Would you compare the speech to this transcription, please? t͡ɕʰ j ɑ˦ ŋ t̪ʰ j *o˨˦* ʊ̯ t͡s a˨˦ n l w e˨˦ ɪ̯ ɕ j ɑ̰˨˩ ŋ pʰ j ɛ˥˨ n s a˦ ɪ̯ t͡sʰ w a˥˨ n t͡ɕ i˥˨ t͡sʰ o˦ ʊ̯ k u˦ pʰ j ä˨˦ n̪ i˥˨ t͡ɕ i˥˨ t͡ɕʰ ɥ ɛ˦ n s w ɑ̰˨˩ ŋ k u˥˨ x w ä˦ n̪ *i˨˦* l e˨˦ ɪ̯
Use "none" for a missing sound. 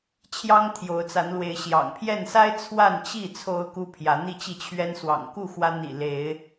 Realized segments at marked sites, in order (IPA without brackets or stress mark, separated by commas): o˨˦, ḭ˨˩